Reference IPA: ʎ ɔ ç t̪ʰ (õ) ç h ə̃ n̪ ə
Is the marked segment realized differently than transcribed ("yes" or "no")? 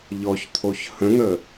yes